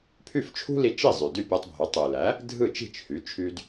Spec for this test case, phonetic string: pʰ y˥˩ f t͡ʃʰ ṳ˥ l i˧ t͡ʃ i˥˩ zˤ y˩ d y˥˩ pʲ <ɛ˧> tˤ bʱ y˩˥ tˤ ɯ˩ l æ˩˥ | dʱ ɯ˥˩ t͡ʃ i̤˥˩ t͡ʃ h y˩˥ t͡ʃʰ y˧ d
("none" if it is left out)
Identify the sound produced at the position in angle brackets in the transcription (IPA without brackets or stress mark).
æ˧